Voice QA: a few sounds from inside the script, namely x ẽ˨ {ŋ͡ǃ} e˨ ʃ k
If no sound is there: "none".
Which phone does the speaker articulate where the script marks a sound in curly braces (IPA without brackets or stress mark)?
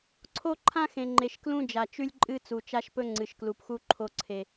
ŋ͡ǃ